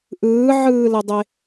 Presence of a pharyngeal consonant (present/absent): present